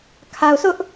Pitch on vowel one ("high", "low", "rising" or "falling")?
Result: low